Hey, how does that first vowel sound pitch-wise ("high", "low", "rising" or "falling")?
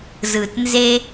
low